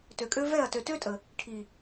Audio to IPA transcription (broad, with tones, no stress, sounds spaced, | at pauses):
t ø˨ kʼ ø˦ v ɛ˦˨ ɐ̯ t ø˨ t ø˦ tʼ ə˨ | ʈʰ i˨